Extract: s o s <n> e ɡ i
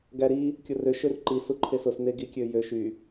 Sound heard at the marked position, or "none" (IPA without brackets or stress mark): n